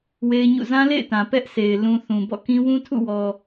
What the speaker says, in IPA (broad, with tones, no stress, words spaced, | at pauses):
we˦ɪ̯ɲṵ˦˨ zã˦lḛ˦˨ɪ̯tã˨ pɛ˦ʔsʰe˨ɪ̯ lũ˨ θũ˨bɔ̰˦˨kĩ˦ wũ˦tʰṵ˦˨wɔ˨